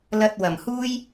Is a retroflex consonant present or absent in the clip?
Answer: absent